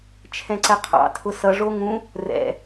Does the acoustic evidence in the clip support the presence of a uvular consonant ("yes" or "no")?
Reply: yes